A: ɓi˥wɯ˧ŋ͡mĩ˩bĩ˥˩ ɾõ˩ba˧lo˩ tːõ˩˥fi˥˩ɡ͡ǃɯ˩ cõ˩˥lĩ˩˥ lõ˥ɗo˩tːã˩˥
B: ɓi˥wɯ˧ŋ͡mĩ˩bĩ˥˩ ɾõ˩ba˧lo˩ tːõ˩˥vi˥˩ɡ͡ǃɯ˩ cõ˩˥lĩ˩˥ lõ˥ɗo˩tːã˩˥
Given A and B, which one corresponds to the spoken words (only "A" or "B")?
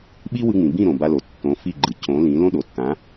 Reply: A